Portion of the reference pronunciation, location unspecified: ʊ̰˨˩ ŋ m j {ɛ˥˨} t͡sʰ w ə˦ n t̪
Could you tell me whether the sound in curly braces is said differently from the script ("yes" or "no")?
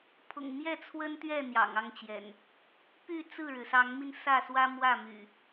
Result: no